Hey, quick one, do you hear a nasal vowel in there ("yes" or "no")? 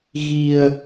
no